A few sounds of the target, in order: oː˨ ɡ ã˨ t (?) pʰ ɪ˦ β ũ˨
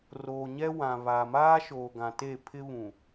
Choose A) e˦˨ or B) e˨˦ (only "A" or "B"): A